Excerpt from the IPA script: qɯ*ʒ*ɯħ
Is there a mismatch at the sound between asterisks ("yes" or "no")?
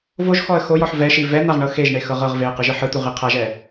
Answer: no